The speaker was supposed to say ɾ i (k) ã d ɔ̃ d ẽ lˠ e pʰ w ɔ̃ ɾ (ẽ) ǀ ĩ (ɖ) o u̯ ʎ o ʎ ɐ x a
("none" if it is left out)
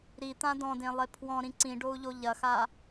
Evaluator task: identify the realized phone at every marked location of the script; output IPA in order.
t̪, ĩ, ɖ

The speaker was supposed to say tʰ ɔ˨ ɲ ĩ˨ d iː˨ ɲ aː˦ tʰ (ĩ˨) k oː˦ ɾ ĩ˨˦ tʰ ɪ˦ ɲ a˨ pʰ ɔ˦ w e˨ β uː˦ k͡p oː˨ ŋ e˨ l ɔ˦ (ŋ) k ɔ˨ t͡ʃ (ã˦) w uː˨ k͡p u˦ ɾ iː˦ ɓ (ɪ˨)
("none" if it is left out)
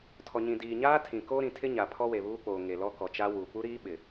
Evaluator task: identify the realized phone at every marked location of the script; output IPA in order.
ĩ˨, none, a˦, ɪ˨

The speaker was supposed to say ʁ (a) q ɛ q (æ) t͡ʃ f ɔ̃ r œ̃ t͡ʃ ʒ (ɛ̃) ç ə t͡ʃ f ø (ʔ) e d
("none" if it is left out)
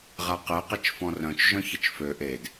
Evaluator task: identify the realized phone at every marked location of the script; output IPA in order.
a, ɛ, œ̃, ʔ

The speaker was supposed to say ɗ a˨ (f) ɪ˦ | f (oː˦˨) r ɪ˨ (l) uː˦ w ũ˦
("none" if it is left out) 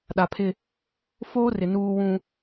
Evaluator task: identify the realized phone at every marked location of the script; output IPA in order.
pʰ, oː˦, n

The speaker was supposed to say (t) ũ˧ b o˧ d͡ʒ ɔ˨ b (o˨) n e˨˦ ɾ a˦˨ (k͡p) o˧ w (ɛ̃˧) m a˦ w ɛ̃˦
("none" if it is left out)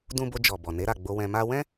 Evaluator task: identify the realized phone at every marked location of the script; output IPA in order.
d, ɔ˨, ɡ͡b, ɛ̃˧

